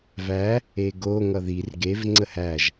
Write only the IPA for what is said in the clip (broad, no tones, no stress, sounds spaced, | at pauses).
v æ | e ɡ o ŋ ʌ ð i r ɡ e v ŋ͡ǀ ə h æ ʒ